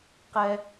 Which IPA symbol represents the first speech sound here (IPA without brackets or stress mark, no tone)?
q